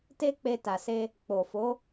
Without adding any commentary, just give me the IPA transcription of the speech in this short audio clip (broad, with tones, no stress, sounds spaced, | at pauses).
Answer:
t e˦ k͡p e˧ t a˨ s e˧ | k͡p o˨ f o˨˦